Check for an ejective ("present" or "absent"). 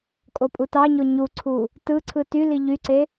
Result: present